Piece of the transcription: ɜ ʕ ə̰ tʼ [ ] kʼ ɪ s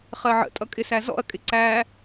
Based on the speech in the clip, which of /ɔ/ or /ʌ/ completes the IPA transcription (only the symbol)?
ʌ